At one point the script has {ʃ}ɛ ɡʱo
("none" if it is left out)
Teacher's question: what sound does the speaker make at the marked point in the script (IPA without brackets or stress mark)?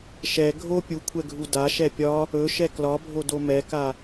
ʃ